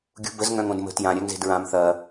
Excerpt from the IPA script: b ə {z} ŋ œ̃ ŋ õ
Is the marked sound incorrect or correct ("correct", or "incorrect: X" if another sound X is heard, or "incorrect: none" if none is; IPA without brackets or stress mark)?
correct